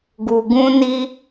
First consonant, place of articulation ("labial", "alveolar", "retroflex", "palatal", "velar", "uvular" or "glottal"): velar